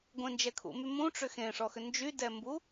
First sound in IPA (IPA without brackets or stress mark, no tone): ɡʷ